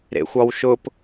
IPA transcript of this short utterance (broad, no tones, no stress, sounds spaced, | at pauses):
ɾ ḛ xʷ ɒ w ʃ ʊ p